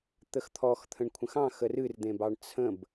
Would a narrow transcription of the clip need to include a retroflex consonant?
yes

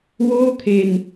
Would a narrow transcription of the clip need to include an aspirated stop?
yes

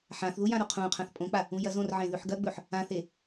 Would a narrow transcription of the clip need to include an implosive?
no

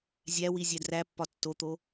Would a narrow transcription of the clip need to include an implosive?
no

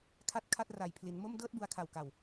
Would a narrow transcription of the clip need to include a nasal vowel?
no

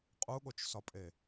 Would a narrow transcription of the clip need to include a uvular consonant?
yes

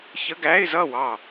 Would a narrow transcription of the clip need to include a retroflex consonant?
no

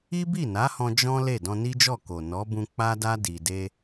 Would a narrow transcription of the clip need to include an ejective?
no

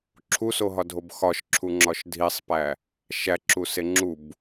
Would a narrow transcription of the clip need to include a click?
yes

